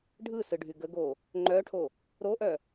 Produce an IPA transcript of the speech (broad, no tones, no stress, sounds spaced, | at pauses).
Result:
ɖʱ ɯ s ɯ ɖʱ y ɡ ə ɡ o | ŋ͡ǃ œ ʈʰ o | ɾ o ʔ œ